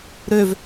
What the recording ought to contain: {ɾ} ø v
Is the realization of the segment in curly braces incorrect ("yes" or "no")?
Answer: no